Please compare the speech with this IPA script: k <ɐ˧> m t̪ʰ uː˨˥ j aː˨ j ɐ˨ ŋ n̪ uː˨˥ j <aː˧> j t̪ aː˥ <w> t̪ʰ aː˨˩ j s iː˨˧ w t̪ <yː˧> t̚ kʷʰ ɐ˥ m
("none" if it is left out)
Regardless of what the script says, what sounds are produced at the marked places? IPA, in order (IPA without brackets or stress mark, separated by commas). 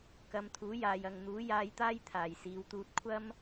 ɐ˧, aː˧, j, uː˧